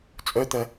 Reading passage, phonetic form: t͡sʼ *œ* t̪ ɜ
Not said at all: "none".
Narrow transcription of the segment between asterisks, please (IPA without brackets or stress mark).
œ